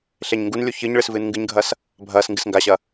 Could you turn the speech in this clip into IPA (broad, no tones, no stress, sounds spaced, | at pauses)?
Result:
ɬ e ɲ ŋ ɡ u n lʲ u ç ɨ ɲ ɭ ɨ s v ɨː n ŋ ɡ ɨ ɲ ɡʱ ɐ s | bʱ ɐː s ŋ ɡ ɨ s ŋ ɡ a ɕ ɐ